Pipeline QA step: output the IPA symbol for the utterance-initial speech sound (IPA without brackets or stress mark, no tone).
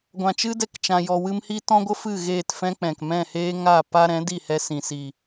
ɡʷ